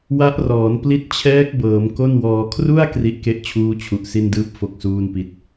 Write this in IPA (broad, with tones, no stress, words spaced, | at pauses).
wa˦˥ʔrɔː˩˦n pli˦˥t̚t͡ɕʰɛː˦˥k̚bɤː˩˦m ko˥˩nwɔː˧ kʰru˥˩a̯ kri˦˥ʔke˦˥ʔ t͡ɕʰuː˦˥t͡ɕʰu˨˩ʔ si˥˩ndɯː˥˩p̚ fo˥˩k̚suː˥˩npi˦˥t̚